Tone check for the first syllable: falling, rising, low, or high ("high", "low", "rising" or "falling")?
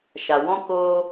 low